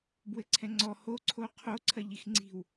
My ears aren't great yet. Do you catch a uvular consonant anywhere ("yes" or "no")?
yes